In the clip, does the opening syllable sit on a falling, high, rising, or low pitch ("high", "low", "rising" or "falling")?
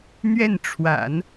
falling